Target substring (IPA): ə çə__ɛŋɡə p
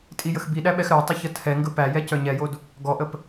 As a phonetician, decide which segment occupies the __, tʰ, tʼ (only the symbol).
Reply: tʰ